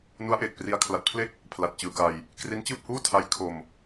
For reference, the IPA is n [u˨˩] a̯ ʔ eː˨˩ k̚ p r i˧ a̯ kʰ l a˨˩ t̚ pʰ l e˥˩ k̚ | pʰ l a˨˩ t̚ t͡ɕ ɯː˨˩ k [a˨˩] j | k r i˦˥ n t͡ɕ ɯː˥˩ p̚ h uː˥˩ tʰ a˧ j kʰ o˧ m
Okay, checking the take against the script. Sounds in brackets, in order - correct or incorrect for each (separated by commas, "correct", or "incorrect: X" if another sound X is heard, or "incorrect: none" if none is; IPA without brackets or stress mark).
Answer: incorrect: u˦˥, incorrect: a˧